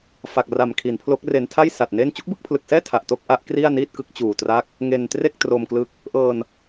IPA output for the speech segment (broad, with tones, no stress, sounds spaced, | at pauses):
f a˨˩ k̚ r a˨˩ m kʰ i˩˦ n pʰ l o˦˥ k̚ r e˧ n tʰ a˥˩ j s a˨˩ t̚ n e˥˩ n t͡ɕ u˦˥ k̚ b ɯ˥˩ k̚ pʰ l ɯ˨˩ k̚ s ɛː˥˩ tʰ a˨˩ ʔ t o˥˩ k̚ ʔ a˦˥ ʔ k r i˥˩ a̯ n iː˥˩ t̚ k ɯ˦˥ k̚ t͡ɕ uː˨˩ t r a˥˩ k̚ | ŋ e˧ n t r e˥˩ k̚ t r o˧ m k l ɯ˦˥ k̚ | ʔ ɤː˧ n